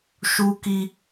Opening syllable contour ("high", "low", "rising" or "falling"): high